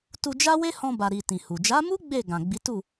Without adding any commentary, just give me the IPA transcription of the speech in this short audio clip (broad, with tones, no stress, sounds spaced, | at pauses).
t u˧ d͡ʒ a˦ w e˦ h ɔ̃˧ b a˨ ɾ i˨ t ĩ˨ h u˨ d͡ʒ a˨˦ m u˦ ɡ͡b e˦˨ ɡ ã˨ ɡ͡b i˨˦ t u˦˨